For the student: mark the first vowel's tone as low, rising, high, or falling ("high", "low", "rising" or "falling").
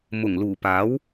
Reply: low